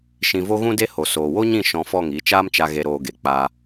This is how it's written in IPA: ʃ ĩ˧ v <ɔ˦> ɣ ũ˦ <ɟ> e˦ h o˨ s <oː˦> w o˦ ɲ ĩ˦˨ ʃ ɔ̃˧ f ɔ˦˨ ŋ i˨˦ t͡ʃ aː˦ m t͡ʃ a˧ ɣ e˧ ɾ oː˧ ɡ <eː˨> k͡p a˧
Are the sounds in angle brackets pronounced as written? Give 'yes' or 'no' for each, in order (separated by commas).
no, no, no, no